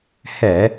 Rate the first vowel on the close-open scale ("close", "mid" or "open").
mid